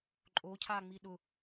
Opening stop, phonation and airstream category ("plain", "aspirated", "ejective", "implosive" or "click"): click